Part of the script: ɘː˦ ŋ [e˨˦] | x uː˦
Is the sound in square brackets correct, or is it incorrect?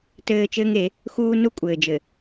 correct